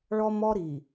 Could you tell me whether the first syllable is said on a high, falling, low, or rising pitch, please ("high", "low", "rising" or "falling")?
high